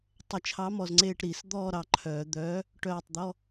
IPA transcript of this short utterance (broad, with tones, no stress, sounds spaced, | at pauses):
tˤ ɐ˨˩˦ t͡ʃʰ ɑ˨˥ m ɔ˨ z ŋ͡ǀ eː˦˨ ʈ ɾ i˨˩˦ s d̪ ɔː˦˨ ɾ ɑ˨ ǃʰ œː˨˩˦ d̪ œː˨˥ | ʈ œː˦˨ tˤ d̪ ɔ˧˥˧